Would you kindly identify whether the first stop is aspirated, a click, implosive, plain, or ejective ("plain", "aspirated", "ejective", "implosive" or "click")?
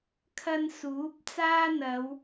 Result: aspirated